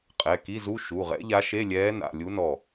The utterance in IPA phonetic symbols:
qʼ ɛ˩˧˩ k i˧˥˧ z u˧˥˧ ʃ u˩˧˩ ʁ ɛ̰˧˥ ʎ a˧˥ ʃ e˧˥˧ lʲ ɛː˧˥ n a̰˩˧˩ lʲ u˧˥ n ɔ˧˩

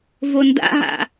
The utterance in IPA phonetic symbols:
v o n d a̰ ɦ a̰

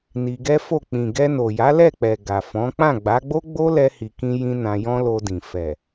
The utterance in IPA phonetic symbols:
n i˧ ɡ ɛ˦ f o˦˨ k͡p ĩ˨ ɡ ɛ˧ n o˨ j a˨˦ l ɛ˦˨ k͡p ɛ˨ ɡ a˨ f ɔ̃˨˦ k͡p ã˦˨ ɡ͡b a˨˦ ɡ͡b o˦ ɡ͡b o˦ l ɛ˧ h i˨ k ĩ˧ j ĩ˧ n ã˧ j ɔ̃˦ l o˧ d ĩ˨ f ɛ˨

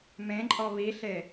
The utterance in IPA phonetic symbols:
m ẽ ǃʼ ɔ β i ɬ e

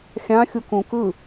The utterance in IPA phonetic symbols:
xʲ ã xʲ u k ũ k ɯ

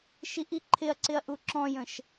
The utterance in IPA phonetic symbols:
ʃ i ʔ i ǃʰ ɪ ɐ̯ ǀ ɪ ɐ̯ ʔ u ǁ ɔ̃ j ə̃ ʃ

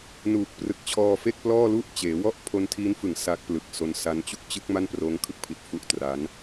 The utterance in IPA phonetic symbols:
n uː˨˩ k̚ p r ɯ˨˩ k̚ t͡ɕʰ ɔː˧ f e˥˩ k̚ p l ɔː˥˩ l u˥˩ ʔ t͡ɕ eː˩˦ w ɔ˥˩ ʔ pʰ o˧ n tʰ iː˦˥ n f ɯ˨˩ ŋ s a˦˥ k̚ p l ɯ˨˩ k̚ s o˧ n s a˦˥ n t͡ɕ u˥˩ k̚ t͡ɕ ɯ˦˥ k̚ m a˥˩ n p r oː˦˥ ŋ kʰ ɯ˥˩ k̚ pʰ i˨˩ t̚ f u˦˥ ʔ t r a˦˥ n

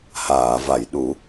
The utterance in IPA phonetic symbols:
h aː˨˩˨ v a˨˩˨ j ɗ u˨˩˦

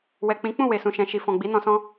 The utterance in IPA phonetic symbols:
w ɛ˨ k͡p ĩ˨˦ k͡p ũ˦˨ w e˨ s ũ˨ ʃ ɛ̃˨ ʃ i˨ f ɔ̃˨ ɡ͡b i˨˦ n ɔ̃˧ s ɔ̃˦

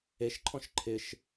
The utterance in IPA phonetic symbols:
e ʃ ǃʰ ɔ̃ ʃ ǃʰ ɪ ʃ

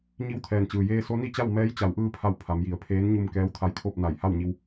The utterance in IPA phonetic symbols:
ɲ i˧ w t̪ʰ ɛː˩ n t͡ɕ ɯː˩ j eː˧ s o˧˥ n i˥˨ t͡ɕ a˥˨ w m ɛː˧˥ j t͡ɕ a˩˧ w ʔ ɯː˧ pʰ a˧˩ w pʰ a˩˧ m j i˩ ə̯ pʰ eː˧˥ n ɲ u˧ m k ɛː˧˥ w t̪ʰ a˧˥ j kʰ o˥˨ p̚ n a˧˩ j h a˥˨ w ɲ i˧ w

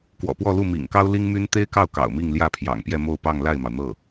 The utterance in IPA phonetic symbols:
k w ɔ̰˨˩ p w ɔ˥˧ l u˥˩ m ḭ˨˩ ŋ k ɑ˥ ʊ̯ l i˥ ŋ m y˥ n t̪ e˥ ɪ̯ k ɑ˥˩ ʊ̯ k ɑ̰˨˩ ʊ̯ m i˥˧ ŋ l j ä˥˩ pʰ j ɑ̰˨˩ ŋ p j ɛ˥˧ m o˥˧ ʊ̯ p ɑ˥˧ ŋ l a˥˩ ɪ̯ m ɑ˩ ʊ̯ n̪ ɤ˥˩

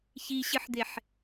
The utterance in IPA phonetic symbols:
ç i ɕ ɨ ħ d̪ e ħ

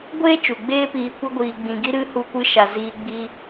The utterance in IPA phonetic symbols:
ɡʷ eː˦ t͡ʃ u˨ ɡ͡b eː˦ p iː˧ kʷ ə˦ ɡʷ iː˧ ɡ͡b ĩ˧ ɡ i˦ ɾ ɨ˦ h u˧ kʷ ɨ˧ ʃ a˨ z iː˧ ɡ͡b i˧

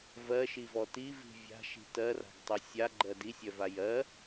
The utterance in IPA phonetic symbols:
v ɜ ʃ i v ɔ t i v i̤ vʲ a̤ ʃ i̤ t ɜ r a̤ ɡ tˤ i sʲ a ɡ͡ǃ ɜ d i sʲ œ v a j ɜ

